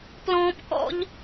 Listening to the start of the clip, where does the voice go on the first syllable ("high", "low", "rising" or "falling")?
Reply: high